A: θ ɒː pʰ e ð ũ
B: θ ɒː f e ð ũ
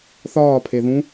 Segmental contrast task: A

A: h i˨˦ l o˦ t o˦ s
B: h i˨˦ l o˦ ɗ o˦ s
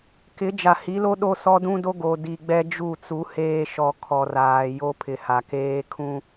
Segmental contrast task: B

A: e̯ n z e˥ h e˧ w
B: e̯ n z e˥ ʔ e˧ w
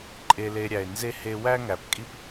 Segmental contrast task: A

